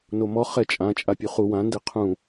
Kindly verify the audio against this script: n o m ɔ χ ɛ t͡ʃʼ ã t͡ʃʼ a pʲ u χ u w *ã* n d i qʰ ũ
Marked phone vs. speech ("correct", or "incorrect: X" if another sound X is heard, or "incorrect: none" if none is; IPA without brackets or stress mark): correct